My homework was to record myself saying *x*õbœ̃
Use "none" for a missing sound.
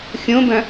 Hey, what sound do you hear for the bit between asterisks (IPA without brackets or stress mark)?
xʲ